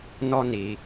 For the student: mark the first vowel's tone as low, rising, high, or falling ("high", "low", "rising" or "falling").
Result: high